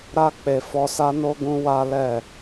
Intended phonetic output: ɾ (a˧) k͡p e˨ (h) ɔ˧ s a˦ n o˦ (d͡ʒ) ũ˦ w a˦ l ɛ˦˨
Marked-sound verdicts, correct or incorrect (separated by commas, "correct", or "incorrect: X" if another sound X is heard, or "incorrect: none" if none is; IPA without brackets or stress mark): correct, incorrect: f, incorrect: ɡ